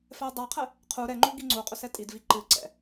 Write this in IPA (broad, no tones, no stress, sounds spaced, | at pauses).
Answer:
f ɛ ə̯ dˤ a qʰ ɛ | qʰ u ɾ ɛ ŋ͡ǃ u ɡ i ŋ͡ǀ u qʼ ɵ s ɛ tʼ i d v i ǃ ɨ ǀ ɛ̰